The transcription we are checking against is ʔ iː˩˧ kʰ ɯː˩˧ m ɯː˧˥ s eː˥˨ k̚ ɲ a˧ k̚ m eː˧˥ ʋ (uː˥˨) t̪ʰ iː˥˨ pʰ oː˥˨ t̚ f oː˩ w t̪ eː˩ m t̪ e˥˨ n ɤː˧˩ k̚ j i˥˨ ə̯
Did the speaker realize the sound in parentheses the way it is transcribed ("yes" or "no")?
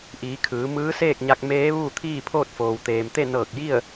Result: yes